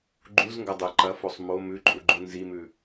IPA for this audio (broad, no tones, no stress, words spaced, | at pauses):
ɡ͡ǃuzŋɡɐdˤe ǃɐfosˤ mo mʉǃʼuɡ͡ǃu nzimʉ